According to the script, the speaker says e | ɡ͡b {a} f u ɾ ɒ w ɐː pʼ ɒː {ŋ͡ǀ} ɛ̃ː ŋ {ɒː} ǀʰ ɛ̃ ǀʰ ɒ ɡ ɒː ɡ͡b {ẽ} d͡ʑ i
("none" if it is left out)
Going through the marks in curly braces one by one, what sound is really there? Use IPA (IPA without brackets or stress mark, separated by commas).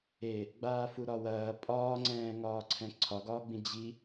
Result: aː, ŋ͡ǀ, ɒː, ĩ